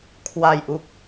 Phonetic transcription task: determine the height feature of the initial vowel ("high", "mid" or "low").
low